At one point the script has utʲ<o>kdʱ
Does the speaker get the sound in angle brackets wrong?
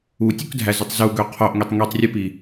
no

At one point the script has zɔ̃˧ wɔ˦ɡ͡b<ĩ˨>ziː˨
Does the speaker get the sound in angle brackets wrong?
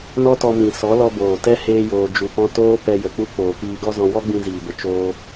yes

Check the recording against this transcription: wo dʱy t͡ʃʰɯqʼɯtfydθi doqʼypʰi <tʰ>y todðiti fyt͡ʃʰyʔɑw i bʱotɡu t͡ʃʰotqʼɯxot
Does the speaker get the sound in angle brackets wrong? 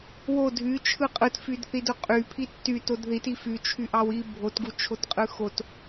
yes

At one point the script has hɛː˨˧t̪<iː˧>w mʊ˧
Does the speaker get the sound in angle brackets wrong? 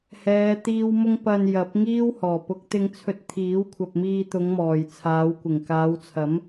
no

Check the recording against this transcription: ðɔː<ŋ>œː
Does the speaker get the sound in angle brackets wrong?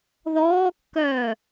yes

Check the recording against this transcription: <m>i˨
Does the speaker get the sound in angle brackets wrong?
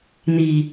yes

